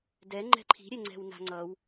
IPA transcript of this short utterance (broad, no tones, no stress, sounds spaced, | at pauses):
d ɛ ŋ͡ǃ ɛ̤ ǃʰ i̤ ɾʲ ɛ ŋ͡ǀ ɛ̤ w n a̤ ŋ͡ǀ ʌ w